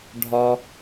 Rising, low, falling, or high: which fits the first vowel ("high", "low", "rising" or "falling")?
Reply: low